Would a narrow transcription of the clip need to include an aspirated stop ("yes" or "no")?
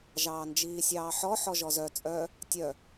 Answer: no